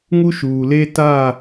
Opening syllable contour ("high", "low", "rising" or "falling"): high